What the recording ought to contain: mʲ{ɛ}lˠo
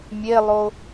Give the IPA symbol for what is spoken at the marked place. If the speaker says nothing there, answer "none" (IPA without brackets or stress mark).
e